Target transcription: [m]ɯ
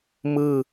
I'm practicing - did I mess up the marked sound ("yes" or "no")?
no